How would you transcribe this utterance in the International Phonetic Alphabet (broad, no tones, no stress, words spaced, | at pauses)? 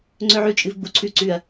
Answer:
ŋ͡ǀɵʕʉ t͡ʃʼɨvɡ͡buǀʰʉ ǀʉɐ̯